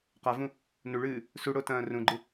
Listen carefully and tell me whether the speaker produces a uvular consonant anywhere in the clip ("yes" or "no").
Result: yes